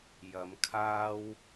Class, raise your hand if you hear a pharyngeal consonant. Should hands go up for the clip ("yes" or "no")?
no